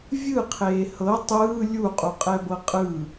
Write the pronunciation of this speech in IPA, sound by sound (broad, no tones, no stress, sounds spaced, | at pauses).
vʲ ɯ qʰ eː h ɤ tˤ ɯː lʲ u qʼ u qʼ ɛ b ɤ qʼ ɯː